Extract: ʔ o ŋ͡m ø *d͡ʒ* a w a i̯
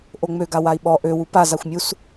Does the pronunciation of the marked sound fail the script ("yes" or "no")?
yes